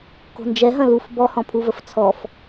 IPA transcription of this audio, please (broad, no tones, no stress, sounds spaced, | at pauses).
k o̤ n d͡ʒ ɛ ɦ ɐ̃ l u f b ɔ h ɔ̃ pʰ u v ə f t͡sʰ ɔ f